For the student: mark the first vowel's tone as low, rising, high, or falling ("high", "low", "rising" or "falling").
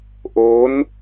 rising